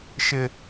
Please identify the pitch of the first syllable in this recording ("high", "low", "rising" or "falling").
high